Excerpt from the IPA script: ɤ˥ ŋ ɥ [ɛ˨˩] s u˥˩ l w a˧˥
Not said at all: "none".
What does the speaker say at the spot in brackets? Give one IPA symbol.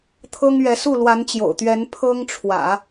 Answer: ɛ˧˥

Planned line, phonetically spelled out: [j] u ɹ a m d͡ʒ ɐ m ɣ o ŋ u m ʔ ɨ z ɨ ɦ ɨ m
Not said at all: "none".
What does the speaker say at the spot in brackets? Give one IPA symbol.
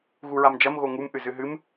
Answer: ɣ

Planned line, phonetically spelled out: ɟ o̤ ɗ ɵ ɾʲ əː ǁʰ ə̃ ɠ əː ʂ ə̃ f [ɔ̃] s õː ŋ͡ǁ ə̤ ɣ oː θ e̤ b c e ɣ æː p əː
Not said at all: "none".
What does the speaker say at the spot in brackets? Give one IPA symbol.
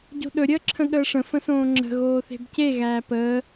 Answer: ə̃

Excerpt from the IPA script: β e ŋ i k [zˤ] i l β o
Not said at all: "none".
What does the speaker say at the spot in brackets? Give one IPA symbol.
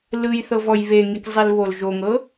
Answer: zˤ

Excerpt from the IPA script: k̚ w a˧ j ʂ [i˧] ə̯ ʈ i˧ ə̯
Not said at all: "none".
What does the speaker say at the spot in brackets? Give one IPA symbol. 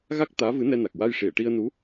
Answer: i˨˩˨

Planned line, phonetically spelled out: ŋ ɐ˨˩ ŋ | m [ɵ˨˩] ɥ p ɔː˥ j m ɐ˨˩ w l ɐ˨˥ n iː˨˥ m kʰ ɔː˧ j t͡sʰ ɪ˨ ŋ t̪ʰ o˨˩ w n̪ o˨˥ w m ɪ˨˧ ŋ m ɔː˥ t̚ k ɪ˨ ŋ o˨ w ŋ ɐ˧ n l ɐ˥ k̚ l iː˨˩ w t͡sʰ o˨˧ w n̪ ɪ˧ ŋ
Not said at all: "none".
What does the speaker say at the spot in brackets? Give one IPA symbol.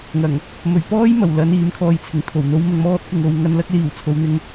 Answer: ɵ˨˩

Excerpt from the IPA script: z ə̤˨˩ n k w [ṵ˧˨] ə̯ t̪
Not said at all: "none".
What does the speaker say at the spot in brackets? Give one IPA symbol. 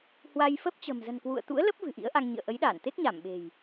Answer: ṵ˧˨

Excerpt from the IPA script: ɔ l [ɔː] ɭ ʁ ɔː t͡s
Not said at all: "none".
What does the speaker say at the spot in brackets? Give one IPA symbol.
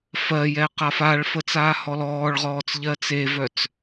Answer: ɔː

